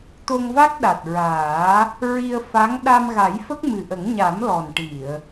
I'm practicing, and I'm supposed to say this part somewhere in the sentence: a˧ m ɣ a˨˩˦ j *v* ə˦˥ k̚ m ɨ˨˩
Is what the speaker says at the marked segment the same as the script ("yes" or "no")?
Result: no